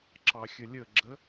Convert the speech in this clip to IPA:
ǁɑxʲəlʲəɡ͡ǁə

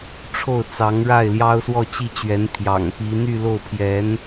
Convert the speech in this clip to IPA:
ʈ͡ʂʰo˥˩ʊ̯t͡sɑ˧˥ŋɻa˥˩ɪ̯ ljɑ˥ʊ̯swɔ˥˧t͡ɕi˥˩t͡ɕɥɛ˧˥n pʰjɑ̰˨˩ŋpi˧˥ n̪y˥˧ lo˥˩ʊ̯pʰjɛ˧˥n

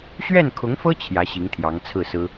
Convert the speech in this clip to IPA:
ɕɥɛ˥˩nkʰʊ˧˥ŋfɤ˥ t͡ɕʰjä˧˥ɕi˧˥ŋ t̪ʰjɑ˧˥ŋt͡sʰɹ̩˥˩sɹ̩˥

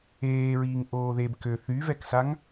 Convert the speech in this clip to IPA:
eːɹiːŋ ʔoːðeb kø θyvɛksaŋ

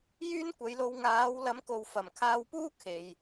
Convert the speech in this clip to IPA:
jyː˥nkʷɐ˨˧jlo˧w ŋaː˨˥w lɐ˨˥mko˨w fɐ˨˩mkʰaː˧wpuː˥ kʰe˨j

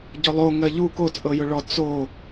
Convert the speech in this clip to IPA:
ɟʊlˠo ŋɜʎu ko t͡sʼɤjʊɭɔ t͡so

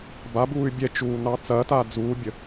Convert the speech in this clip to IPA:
babuːy̯ bʲɛt͡ʃuːnɑ t͡sɐːtaː d͡zuːbʲə

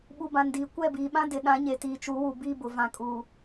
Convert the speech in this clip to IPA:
ɓu˨bã˨ndiː˨ kʷɛ˦˨biː˨ ɓã˦dɪ˨ɗã˨˦ɲe˨ tiː˨t͡ʃu˨˦wu˨ biː˦bʊ˨ vã˨kʼuː˨

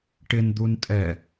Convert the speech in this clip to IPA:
ʈɪn d̪untʼɛ

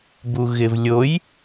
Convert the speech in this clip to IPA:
buɣɪvlʲoj

